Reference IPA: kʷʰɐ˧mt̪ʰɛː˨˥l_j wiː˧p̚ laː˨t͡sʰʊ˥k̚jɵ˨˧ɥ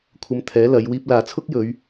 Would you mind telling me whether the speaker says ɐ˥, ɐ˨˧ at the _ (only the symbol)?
ɐ˨˧